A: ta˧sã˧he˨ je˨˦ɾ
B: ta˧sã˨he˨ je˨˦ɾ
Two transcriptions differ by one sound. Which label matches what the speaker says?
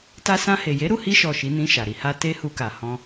A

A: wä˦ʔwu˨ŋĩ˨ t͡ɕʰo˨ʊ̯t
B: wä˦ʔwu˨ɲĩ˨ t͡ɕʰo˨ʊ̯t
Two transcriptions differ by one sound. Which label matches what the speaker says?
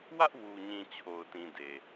B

